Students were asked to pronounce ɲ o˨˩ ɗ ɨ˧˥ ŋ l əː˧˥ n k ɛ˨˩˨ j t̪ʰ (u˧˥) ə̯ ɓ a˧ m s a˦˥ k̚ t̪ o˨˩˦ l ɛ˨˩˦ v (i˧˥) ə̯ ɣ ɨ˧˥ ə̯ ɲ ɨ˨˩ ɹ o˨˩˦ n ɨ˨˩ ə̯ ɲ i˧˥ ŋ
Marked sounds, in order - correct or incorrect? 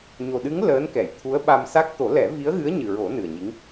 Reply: correct, correct

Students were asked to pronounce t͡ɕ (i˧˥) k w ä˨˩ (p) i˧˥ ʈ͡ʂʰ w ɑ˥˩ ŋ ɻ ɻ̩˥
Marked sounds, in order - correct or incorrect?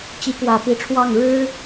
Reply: correct, correct

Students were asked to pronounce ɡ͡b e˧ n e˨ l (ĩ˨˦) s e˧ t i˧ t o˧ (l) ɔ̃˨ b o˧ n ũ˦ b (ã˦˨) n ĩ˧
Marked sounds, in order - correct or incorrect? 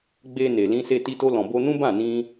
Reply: incorrect, correct, correct

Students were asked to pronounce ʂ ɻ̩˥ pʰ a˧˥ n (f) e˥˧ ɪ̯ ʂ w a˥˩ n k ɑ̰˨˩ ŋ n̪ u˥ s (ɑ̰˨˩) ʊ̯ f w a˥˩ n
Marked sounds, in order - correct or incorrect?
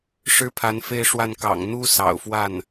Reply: correct, correct

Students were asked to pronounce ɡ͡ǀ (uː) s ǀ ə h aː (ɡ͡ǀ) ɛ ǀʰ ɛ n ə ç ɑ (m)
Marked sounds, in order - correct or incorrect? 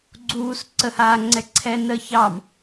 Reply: correct, incorrect, correct

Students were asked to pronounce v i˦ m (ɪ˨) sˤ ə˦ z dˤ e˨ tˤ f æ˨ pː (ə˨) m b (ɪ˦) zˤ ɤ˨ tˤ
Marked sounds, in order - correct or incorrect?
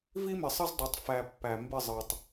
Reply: correct, incorrect, incorrect

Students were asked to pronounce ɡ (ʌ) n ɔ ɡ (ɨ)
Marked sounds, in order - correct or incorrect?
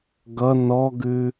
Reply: correct, incorrect

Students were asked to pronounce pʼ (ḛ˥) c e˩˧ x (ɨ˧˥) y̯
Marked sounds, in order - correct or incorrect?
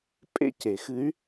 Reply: correct, correct

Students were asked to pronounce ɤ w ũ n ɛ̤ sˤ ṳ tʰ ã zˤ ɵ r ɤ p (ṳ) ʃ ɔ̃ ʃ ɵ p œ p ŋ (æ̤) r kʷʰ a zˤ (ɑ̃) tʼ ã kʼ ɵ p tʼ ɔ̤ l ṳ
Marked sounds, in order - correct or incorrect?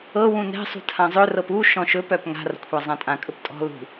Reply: incorrect, incorrect, incorrect

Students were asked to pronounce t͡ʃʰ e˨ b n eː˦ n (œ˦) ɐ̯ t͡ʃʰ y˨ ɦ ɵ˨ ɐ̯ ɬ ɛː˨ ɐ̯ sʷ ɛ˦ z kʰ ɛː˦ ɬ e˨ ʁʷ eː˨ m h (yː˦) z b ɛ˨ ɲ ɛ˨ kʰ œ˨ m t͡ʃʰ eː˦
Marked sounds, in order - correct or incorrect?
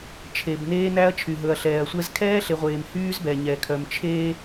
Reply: incorrect, correct

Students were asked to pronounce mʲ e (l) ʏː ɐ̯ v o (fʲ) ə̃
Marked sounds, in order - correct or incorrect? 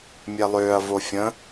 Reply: incorrect, correct

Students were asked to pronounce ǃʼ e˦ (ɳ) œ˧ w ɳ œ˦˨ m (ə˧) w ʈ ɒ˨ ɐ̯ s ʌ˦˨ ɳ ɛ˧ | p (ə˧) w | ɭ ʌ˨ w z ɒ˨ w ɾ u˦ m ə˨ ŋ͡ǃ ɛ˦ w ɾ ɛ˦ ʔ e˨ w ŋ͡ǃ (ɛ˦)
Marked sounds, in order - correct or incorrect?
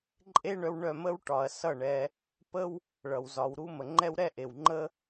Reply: correct, incorrect, incorrect, incorrect

